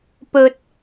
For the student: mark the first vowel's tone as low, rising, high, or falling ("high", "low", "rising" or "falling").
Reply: rising